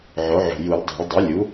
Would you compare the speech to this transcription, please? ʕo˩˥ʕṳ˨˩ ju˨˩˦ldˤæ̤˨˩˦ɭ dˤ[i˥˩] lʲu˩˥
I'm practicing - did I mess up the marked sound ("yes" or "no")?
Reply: yes